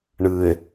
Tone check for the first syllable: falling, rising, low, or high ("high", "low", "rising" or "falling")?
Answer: low